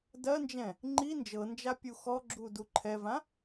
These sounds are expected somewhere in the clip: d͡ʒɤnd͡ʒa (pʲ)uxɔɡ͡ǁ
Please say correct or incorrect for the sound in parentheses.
correct